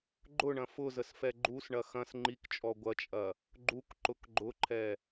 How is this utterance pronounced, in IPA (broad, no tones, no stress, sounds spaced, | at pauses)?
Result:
ɡ͡ǃ ʊ ɳ ɐ̃ f ʊ z ə s f ɛ ɡ͡ǃ u s ɳ ɐ x ɐ̃ s ŋ͡ǃ i k t͡ʃʼ ɔ ɡʷ ɐ t͡ʃʼ ɐ | ɡ͡ǃ u k ǃ ʊ k ɡ͡ǃ ʊ ǃʰ ɛ